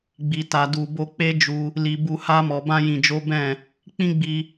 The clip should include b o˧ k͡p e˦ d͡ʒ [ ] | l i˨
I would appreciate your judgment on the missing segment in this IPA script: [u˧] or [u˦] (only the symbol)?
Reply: u˧